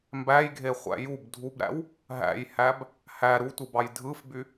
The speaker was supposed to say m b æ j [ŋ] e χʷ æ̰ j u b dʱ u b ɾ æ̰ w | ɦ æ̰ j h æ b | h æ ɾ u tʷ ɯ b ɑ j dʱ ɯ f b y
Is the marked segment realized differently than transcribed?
yes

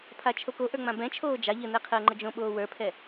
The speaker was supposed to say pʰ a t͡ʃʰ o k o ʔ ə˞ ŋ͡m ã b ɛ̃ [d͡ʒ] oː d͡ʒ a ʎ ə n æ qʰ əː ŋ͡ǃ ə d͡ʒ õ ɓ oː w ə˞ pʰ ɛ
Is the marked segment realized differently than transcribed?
yes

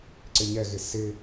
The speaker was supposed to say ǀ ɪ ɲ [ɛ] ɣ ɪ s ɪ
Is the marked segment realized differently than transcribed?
no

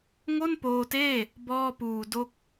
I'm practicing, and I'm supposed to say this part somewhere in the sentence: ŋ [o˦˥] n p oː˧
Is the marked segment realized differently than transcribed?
yes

